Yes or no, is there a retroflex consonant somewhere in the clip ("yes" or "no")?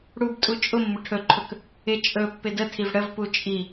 yes